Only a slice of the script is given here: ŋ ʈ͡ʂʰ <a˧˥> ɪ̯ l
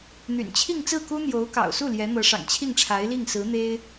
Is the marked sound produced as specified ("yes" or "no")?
yes